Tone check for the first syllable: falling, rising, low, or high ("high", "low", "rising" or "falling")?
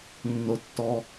low